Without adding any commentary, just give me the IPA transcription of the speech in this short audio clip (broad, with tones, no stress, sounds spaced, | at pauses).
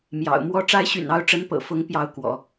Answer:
m j ɑ̰˨˩ ʊ̯ m w ɔ˧˥ ʈ͡ʂ a˧˥ ɪ̯ ɕ y̰˨˩ n ɑ˧˥ ʊ̯ ʈ͡ʂ ə˧˥ n p ɤ̰˨˩ f ʊ˧˥ ŋ p j ɑ˧˥ ʊ̯ k w ɔ̰˨˩˦